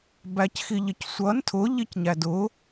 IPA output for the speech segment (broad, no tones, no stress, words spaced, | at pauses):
bæcxiʎɪcsʷʌn tʰʊ ʎicɲædʊ